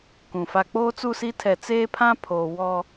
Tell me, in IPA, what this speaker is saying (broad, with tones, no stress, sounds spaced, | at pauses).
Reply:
k ũ˨ f a˨ k͡p oː˦ t͡s u˦˨ s i˦ tʰ ɛ˨ t͡s eː˦ pʰ ã˦ pʰ oː˨ w ɔ˦